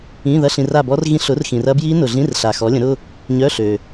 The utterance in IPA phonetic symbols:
ĩ˧˥˧ ðɐ˧˥˧ɬĩ˨ra˦˨bɔ˦˥r ɣĩ˦˥ɬ ʊ˨˥rxĩ˨rɐ˦˥ bji˦˥nʊ˨ɮĩ˧˥˧rɬa˨ xɔ˨˥lʲə̃˨˥ɾʊ˧˥˧ | ɲœ˧˥˧ ɬø˨

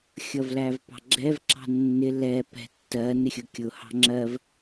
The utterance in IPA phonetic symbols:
xʲʌvlævpɑ̤ɡ͡ǁɛv ǁɑ̤nːɪ lɛ pɛ̤ tːɜ nɪxʲʊkʲʊ hɑ̤ŋ͡ǁɜv

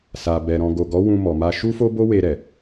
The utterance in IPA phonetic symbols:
sa˨bɛ˨ ɾɔ̃˨ɡo˨ɡɔ˨˦ wũ˧mɔ˨ma˧ ʃu˦fo˦bo˦we˧ ɾɛ˨

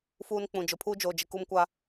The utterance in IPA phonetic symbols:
fuː˦nk͡pũ˨ d͡ʒʊ˨pʰuː˦d͡ʒoː˨d͡ʒɪ˨ ku˦mkʷa˦

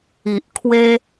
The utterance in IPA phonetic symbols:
i˨ʔ kʰwe˧

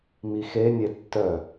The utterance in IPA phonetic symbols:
mixe nʲetːœ

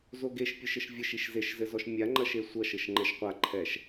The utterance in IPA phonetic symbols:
zoɡeʃ pʲɨʃɘʃvʲɘʃ iʃzeʃzɘzɔʃ mʲaŋ͡ǃɐʃe sʷɐʃɘʃ ŋ͡ǃɛʃqʷaǃʰɛʃ

